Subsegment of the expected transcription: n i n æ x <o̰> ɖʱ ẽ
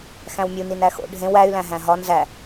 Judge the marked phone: correct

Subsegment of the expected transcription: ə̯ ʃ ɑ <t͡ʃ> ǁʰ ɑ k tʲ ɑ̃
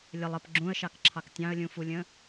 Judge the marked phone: incorrect: k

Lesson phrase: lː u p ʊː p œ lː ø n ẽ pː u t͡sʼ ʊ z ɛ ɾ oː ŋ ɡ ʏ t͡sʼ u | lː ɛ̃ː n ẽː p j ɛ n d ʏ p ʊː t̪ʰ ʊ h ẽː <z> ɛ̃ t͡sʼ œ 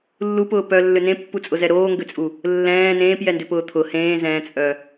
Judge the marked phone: correct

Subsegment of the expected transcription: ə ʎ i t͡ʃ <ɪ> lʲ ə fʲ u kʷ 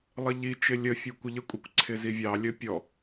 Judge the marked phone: correct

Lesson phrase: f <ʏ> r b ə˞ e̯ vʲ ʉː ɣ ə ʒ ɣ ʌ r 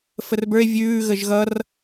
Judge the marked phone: incorrect: ə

